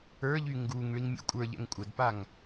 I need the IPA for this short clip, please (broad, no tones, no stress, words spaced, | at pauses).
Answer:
ə˞ʎy ŋɡuŋ ɭiŋmʲo̰kʷʼə˞ʎɛ̰ŋ kʷʼədpaŋ